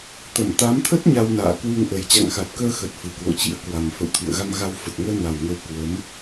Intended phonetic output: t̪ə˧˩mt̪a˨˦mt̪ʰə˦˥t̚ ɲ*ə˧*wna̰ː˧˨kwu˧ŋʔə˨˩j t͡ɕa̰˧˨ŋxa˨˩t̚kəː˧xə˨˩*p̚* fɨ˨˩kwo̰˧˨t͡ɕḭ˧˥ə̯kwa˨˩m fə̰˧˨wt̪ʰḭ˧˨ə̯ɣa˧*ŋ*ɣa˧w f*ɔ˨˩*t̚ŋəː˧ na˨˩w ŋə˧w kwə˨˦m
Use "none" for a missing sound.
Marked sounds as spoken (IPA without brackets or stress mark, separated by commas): a˧, t̚, m, ə˨˩